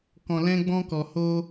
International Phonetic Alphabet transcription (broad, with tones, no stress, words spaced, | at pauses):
kɔ̃˧lɛ̃˦ɡ͡bɔ̃˦ kɔ˧ho˦